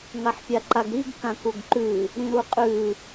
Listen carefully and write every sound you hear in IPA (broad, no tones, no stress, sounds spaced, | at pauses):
ŋ a ħ pʲ a ǃ a ɡ ɾ i ɡ k ã k u ɡ ǃ ʉ | ɾ ĩ ɾ u qʼ ʉ